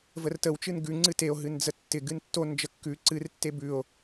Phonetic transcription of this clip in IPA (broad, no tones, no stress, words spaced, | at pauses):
vərtəwt͡ʃɨn ɡʉŋ͡ǀɨ teo̯ɦɨn d͡zətːɪ ɡɨntːon d͡ʒəkːʉ ǀɨrtːe bʉo̯